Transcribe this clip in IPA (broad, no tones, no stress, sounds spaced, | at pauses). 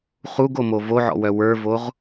χ u ɡ o m o v o ʕ ɔ̰ w œ w ə˞ v o ʁ